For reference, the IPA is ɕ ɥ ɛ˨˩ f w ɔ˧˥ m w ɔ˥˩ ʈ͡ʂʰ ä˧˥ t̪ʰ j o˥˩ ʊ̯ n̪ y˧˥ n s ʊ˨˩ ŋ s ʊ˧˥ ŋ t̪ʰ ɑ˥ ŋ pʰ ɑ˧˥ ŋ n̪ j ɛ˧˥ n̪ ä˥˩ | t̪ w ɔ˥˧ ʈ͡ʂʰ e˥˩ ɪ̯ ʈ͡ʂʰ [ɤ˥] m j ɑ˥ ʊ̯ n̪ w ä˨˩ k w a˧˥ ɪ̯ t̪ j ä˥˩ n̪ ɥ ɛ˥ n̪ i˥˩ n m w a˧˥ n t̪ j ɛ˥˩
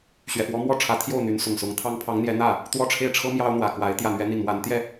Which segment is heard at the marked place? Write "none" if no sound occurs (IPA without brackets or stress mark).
ɤ˥